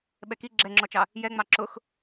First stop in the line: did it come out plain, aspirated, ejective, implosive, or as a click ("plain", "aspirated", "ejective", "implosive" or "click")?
implosive